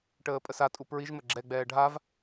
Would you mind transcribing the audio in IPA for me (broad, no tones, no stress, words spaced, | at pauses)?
ʈəːpʼəsatʼu pɹiʒmə ɡ͡ǁɛɡ͡bɛː ɖʱav